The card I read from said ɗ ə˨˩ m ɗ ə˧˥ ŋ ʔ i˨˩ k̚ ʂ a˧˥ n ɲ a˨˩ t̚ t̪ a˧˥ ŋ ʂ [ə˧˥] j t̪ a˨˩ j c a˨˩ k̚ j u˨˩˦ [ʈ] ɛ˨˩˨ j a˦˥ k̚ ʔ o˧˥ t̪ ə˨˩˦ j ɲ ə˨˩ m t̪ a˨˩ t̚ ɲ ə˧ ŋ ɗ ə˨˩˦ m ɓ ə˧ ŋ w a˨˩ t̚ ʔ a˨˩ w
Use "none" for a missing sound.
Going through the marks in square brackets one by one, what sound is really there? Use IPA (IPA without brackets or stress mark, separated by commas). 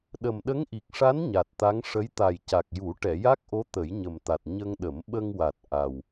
ə˧˥, ʈ